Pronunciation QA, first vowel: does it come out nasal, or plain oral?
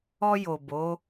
oral